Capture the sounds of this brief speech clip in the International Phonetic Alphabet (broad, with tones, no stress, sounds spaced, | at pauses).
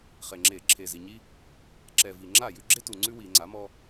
χ e˨˩ ŋ͡ǁ e˧˩˧ ǁʰ e˨˩ z i˨˩ ɲ i˦ | ǁ ɛ˨˩ v i˨˩ ŋ͡ǁ a˥˩ j ʉ˦ ɡ͡ǁ e˦ t u˨˩ ŋ͡ǀ ʉ˦ w i˧˩˧ ŋ͡ǀ a˩˥ m ɔ˦